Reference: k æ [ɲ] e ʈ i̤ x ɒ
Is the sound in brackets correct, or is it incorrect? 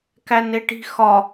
incorrect